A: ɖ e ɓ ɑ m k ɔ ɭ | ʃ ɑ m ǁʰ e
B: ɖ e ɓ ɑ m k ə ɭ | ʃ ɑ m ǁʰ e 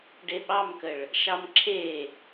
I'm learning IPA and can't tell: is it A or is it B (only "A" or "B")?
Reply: B